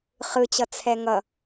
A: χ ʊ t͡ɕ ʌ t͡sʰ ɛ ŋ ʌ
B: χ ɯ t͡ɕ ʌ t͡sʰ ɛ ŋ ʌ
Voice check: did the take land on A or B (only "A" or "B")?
B